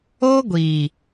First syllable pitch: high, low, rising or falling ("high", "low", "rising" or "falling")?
high